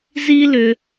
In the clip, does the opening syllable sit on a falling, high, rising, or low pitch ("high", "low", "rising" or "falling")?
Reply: high